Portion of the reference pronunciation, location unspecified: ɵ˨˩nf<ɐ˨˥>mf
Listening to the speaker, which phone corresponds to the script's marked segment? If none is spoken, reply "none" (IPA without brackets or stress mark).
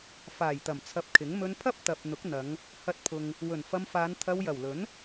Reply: ɐ˧